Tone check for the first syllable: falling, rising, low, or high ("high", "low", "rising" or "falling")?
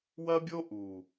high